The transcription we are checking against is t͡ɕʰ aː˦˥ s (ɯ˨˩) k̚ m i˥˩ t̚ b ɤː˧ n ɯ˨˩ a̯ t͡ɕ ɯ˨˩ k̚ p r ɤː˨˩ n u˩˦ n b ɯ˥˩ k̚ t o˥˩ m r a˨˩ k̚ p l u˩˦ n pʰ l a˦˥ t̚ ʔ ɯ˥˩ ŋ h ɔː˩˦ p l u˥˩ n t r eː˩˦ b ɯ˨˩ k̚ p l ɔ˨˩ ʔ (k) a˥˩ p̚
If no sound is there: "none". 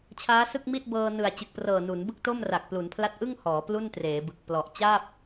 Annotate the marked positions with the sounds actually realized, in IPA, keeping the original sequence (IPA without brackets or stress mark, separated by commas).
ɯ˥˩, t͡ɕ